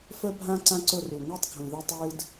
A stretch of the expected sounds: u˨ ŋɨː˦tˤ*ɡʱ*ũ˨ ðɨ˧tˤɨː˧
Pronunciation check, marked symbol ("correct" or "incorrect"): correct